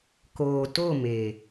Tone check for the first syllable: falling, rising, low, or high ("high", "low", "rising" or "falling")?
low